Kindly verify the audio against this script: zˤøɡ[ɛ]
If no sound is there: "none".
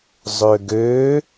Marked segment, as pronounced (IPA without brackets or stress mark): ø